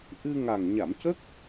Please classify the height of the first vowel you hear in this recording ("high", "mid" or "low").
high